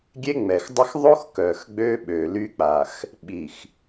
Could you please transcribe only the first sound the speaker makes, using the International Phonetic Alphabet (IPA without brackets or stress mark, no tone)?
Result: ɡʲ